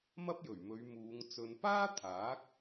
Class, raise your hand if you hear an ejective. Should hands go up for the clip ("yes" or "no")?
no